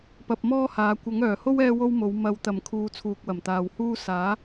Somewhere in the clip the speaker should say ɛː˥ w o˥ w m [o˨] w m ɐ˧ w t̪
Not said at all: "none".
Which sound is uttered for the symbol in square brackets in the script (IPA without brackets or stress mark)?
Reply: o˨˥